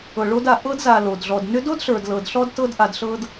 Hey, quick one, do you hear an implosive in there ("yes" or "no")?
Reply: no